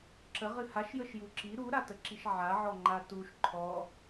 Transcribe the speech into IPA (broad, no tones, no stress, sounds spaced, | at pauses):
ǁ ə ʁ ɨ h a ʃ j ə ʃ j u ǁ i ɾ u ɾ a t ə ǁ i ʃ ʕ a ʕ ɔ ŋ͡ǃ a t u ʃ ǃʰ ɔ